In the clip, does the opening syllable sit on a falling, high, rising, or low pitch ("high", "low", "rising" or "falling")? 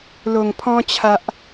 low